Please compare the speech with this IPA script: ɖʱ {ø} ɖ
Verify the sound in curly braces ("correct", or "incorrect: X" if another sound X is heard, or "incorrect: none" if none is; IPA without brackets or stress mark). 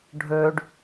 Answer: correct